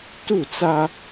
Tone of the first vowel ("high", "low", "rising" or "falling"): falling